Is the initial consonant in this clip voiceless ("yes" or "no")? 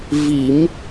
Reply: no